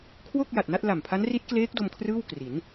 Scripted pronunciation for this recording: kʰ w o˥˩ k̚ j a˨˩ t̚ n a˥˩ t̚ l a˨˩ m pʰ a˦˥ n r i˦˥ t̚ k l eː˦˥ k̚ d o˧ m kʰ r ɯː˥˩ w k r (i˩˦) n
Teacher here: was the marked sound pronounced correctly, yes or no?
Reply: yes